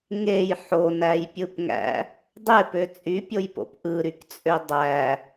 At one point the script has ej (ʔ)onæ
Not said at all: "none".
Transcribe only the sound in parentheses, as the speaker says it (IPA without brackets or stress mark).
ħ